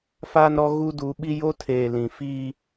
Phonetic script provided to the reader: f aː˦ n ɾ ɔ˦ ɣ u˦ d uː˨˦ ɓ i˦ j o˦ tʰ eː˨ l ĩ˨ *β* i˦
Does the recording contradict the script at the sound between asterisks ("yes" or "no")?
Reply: yes